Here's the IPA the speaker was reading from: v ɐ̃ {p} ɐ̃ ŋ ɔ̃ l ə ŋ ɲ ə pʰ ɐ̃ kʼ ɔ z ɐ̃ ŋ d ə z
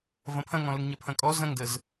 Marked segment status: incorrect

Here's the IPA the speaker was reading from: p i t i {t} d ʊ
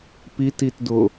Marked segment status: correct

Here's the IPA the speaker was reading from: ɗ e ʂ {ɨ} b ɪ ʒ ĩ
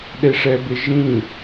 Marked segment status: incorrect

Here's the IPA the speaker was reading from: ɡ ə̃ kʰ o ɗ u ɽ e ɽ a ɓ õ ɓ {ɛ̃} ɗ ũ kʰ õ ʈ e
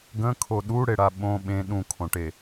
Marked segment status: incorrect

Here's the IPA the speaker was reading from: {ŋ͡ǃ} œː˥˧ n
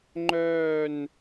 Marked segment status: correct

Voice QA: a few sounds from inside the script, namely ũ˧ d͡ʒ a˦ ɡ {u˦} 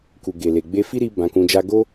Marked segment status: incorrect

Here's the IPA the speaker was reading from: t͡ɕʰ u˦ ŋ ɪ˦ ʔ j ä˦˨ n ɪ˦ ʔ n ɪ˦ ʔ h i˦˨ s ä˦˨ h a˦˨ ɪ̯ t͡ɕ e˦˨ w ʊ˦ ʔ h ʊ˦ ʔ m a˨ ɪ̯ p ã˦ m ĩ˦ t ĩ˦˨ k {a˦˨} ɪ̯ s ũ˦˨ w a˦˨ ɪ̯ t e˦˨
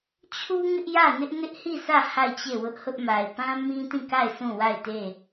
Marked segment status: correct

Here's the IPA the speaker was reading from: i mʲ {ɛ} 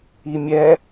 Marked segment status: correct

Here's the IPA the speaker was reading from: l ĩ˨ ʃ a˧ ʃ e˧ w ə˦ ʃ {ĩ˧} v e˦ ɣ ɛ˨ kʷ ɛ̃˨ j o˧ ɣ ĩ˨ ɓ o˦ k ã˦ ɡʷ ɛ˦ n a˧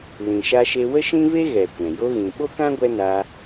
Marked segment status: incorrect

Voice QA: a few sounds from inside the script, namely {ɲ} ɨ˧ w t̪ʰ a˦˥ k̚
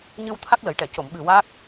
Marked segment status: correct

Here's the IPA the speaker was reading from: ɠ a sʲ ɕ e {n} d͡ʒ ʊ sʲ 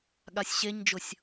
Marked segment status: incorrect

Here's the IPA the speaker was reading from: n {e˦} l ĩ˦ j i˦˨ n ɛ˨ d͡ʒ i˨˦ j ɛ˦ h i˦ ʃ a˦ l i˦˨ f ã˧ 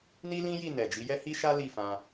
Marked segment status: incorrect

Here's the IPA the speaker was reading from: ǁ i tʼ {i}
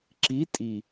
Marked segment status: correct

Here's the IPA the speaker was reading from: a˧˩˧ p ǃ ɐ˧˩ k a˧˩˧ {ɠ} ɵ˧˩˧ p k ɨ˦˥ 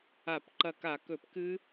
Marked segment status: incorrect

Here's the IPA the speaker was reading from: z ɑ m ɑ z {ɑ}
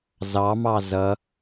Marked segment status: incorrect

